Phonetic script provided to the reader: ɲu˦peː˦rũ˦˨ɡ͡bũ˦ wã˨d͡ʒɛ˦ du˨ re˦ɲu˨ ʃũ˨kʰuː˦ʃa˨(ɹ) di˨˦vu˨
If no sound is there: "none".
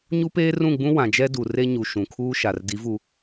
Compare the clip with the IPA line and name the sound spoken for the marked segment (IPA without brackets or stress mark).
r